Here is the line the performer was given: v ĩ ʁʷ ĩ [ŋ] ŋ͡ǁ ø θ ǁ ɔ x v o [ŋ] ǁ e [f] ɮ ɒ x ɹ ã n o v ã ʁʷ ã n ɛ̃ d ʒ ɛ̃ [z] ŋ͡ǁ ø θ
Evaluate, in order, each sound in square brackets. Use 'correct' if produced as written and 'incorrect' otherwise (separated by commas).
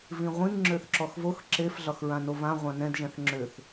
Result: correct, incorrect, correct, incorrect